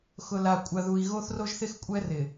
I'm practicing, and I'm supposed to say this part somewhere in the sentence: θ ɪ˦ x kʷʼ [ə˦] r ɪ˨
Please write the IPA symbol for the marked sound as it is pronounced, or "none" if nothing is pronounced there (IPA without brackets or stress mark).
ɛ˦